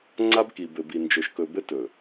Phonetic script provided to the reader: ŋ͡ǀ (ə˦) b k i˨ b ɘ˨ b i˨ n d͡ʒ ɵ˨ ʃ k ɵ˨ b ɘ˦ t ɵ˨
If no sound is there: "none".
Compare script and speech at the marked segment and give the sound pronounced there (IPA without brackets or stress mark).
a˦